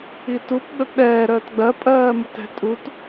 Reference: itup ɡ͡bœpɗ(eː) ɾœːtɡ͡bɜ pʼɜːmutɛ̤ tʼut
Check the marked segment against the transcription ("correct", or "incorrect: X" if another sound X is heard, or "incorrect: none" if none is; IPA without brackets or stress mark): incorrect: ɛː